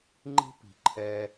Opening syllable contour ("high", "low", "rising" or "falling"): high